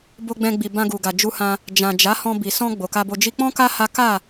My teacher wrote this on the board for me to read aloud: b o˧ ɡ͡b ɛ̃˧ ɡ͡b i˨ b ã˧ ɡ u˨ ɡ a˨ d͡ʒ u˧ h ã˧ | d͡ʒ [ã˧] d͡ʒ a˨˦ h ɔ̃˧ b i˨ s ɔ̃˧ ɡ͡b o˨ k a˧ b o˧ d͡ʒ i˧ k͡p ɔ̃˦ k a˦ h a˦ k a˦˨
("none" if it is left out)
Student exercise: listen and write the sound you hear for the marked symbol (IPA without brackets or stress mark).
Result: ã˨